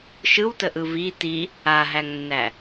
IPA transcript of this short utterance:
ʃɯwtəʔɯ vi ti | aɦæŋnːæ

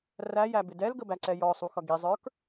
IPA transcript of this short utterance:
ræjæbɪ dɛlɡəbæǀɛ jɔsˤuxʌ ɡizˤə˞k

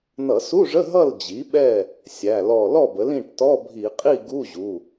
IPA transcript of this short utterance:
nʌ˧˩˧su˧˥˧ʐə˧˥˧ ɦʌ˥˨ld͡ʑi˩˥ɓɛ˥˨ | sʲæ˩˧˩lɔ˧˩ lɔ˥˨bə˩˥l ĩ˩˧˩ʈtɔ˧˥˧bʱi˧˩˧ qʼi˥˨ɡu˧˥˧ʑu˩˧˩

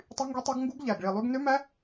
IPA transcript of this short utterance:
tˤy˦˥ŋɡi˦˥tˤɑ˦˥ɡ ŋɡu˦˥ɡ ʎæ˨˩ɡ ɭi˨˩lˠy˦˥ɡ nø˦˥mæ˦˥

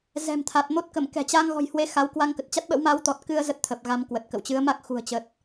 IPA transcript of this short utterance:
zɛ̤˨˩mt̪ʰa˨˩t̚ mo˦˥t̚kə˧˩m kɛ̤˨˩t͡ɕa˧ŋ ɣɔ̤˨˩jhwe˨˦ xa˨˦w kwa˧ŋkə˨˩t̚t͡ɕa˦˥t̚ɓə̰˧˥w ma˨˦wt̪ɔ˨˩t̚kɨ˧ə̯ zə˦˥t̚t̪ʰə˨˩p̚ ɣa˧mkwə˨˩t̚kə̰˧˨w t͡ɕɨ˨˦ə̯ma˦˥k̚ xṳ˨˩ə̯t͡ɕə˨˩t̚

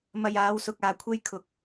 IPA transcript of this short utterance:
mɐ˨j aː˨˧wsʊ˨k̚aː˨kʷʰe˧j kʰʊ˨k̚

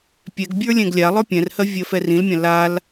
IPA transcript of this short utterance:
pʲɛɡbʲə˞ lʲɛ̃ɡlʲalˠə˞ pʲɛ̃rhɜ vʲɜfɛrĩlmʲã lal

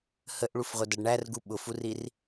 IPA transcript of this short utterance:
həʔɭufʁʷədʌɖ ɳærɡu ɓʊfurir

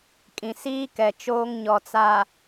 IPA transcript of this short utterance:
kʼĩ˨siː˦kɛ˨ t͡ʃoː˦ŋ ɲɔ˨t͡sa˨

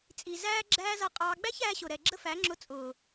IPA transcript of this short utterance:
t͡sʼi˨zæː˦ ɡ͡ǁæː˦zʌ˧qʼɑː˧ ɡ͡bæ˦çæː˧ɕʊ˨ɾɛ˨ ɡ͡ǁə˦fæ˨˦ŋ͡ǁʊ˧ t͡sʼʊː˨

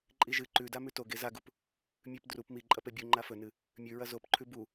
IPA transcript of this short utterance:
ǃʼiʒɨ ǃʉda mʉto ɡezaɡup | mʲʉp drup miǃʼɐpe bʲu ŋ͡ǃafɵnɨ | mʲʉɹɐ zopǃʰʉ bu

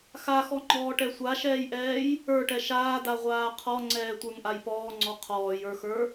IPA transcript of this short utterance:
xaxɔŋ͡ǃɔːʈɛ sʷaʃɛːjʔɛːj | ə˞ʈɛ ʃaːda ʁʷaːqʰɔŋ͡ǀɛː tʷə˞ŋʔajpɔːŋ͡ǀɔ qʰɔːjə˞xə˞

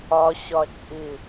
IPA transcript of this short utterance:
ɒɕɒt͡ʃʼɪ

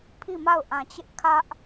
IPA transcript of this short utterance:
pʰi˦˨ma˦˨ʊ̯ʔã˨t͡ɕɪ˦ʔ kʰä˦ʔ

